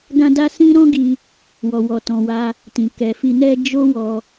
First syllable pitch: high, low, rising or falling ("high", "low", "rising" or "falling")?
high